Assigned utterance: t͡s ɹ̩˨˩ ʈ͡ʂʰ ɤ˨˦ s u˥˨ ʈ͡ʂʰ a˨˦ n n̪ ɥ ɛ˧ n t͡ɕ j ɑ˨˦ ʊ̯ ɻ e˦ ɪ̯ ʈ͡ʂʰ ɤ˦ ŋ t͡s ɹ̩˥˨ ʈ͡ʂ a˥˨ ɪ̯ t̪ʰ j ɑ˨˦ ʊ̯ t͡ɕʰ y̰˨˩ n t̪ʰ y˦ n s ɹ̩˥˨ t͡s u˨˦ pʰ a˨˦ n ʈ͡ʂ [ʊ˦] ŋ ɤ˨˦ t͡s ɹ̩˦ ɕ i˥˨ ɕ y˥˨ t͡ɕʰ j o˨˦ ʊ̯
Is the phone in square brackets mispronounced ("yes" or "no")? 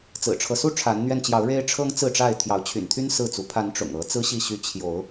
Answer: yes